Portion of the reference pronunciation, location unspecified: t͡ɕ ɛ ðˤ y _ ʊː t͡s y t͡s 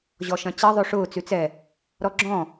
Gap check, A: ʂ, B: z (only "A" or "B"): A